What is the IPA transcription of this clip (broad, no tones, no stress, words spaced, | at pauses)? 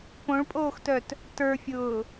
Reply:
põɭpʼoːxtœt | tə˞fʲʊː